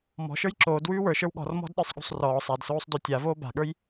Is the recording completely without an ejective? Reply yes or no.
yes